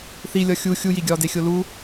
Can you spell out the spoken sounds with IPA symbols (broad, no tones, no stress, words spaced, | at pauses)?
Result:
θilʲɒ xʲu xʲujiɡʲɒːde xʲolu